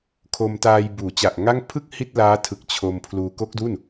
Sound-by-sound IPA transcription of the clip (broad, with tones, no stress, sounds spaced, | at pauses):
kʰ o˧ m t aː˧ j b uː˩˦ t͡ɕ a˨˩ ʔ ŋ a˥˩ ŋ pʰ ɯ˥˩ k̚ h i˥˩ t̚ l aː˦˥ tʰ ɯ˨˩ k̚ t͡ɕʰ o˧ m pʰ l uː˧ k o˦˥ k̚ d u˥˩ n